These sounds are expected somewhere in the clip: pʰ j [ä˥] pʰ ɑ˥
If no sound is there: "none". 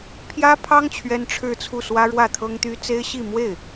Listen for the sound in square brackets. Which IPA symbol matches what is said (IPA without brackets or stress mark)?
ä˥